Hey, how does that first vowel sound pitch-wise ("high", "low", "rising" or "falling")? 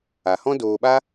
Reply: low